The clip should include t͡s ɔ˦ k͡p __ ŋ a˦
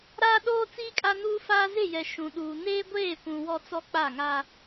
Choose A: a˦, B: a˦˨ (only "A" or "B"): B